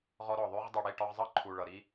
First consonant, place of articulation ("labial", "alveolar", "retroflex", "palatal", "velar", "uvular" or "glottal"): uvular